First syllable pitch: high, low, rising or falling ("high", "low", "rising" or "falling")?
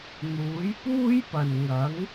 rising